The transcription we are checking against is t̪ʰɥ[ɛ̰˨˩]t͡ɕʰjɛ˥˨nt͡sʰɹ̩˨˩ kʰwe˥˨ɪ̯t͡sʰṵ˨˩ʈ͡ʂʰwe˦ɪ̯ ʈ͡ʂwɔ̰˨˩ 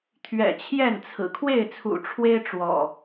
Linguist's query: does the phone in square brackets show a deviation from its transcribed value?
no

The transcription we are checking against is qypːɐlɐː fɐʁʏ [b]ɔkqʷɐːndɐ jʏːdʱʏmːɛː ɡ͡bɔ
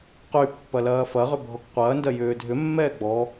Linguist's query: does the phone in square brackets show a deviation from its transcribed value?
yes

